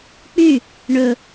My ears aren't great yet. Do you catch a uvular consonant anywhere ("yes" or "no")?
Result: no